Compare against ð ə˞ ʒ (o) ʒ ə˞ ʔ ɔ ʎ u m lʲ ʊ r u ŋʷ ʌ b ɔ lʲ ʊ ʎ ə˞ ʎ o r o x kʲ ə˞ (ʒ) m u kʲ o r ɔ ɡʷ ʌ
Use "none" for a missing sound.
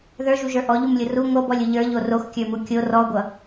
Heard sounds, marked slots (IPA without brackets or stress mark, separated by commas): u, none